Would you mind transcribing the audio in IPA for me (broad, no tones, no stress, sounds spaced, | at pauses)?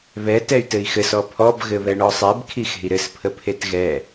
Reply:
β ɛ t ɛ y̯ t ɘ i̯ x ɘ s ɔ pʰ ɔ b ɣ ɘ β ɛ ɳ ɔ sˤ ɛ b kʰ i x e̤ i̯ ɾ ɘ s pʰ ə pʰ e t ɣ ɛ